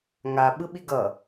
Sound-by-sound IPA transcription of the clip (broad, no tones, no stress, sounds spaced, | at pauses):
ŋ a ɓ ɯ ɓ i ɡ ʌ